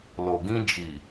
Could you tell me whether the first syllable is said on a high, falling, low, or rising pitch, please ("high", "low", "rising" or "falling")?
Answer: low